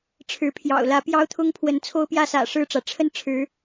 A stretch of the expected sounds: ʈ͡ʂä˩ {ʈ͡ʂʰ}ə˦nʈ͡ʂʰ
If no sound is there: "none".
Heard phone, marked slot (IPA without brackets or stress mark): ʈ͡ʂʰ